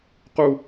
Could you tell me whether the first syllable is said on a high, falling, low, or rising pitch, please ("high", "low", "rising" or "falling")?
high